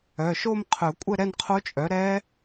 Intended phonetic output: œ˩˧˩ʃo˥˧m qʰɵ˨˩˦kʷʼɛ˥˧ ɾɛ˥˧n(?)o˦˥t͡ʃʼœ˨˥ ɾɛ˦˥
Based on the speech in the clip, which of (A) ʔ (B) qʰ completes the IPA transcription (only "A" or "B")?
B